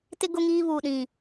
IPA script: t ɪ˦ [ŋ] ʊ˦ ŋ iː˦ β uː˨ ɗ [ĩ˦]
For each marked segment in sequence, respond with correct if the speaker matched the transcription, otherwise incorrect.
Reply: incorrect: ɡ, incorrect: ĩ˨

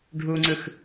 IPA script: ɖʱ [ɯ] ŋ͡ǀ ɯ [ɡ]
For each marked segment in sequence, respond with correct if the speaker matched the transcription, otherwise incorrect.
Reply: incorrect: u, incorrect: x

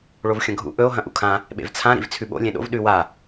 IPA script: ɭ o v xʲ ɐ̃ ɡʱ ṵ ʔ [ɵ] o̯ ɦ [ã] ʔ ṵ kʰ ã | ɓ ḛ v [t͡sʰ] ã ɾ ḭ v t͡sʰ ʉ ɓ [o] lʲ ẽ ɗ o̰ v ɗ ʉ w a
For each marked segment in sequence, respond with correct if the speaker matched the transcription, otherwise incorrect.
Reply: correct, incorrect: ɐ̃, correct, incorrect: o̰

